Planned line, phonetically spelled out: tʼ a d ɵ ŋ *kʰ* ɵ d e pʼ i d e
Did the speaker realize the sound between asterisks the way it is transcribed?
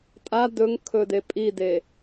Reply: yes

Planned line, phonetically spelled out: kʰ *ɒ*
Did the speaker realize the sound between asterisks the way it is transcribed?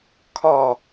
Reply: yes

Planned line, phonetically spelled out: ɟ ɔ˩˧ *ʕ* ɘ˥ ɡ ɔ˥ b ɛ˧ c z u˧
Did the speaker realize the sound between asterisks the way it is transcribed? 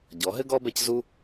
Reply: no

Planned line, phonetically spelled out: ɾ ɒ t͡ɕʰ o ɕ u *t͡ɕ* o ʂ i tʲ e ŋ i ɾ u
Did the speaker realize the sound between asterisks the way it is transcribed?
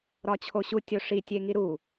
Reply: no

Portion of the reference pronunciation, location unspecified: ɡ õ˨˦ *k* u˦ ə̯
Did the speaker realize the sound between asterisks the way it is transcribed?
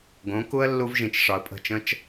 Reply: yes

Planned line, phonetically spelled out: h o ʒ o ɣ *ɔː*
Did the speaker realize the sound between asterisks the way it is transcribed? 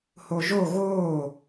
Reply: no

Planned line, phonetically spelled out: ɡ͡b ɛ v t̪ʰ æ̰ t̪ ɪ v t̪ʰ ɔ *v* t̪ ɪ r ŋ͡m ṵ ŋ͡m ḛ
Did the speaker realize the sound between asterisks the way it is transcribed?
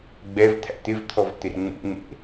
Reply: yes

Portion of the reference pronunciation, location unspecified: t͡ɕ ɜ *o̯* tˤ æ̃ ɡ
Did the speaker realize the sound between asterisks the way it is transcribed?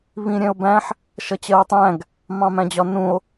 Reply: yes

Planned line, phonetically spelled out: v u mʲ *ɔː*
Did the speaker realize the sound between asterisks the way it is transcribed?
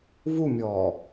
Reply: yes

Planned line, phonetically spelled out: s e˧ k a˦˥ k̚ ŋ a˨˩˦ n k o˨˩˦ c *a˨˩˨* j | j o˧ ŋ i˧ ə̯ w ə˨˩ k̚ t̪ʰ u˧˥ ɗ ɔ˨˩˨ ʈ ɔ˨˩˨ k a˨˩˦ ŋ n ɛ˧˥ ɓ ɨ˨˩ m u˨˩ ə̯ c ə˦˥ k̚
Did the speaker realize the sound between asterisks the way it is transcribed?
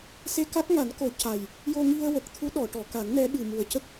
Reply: no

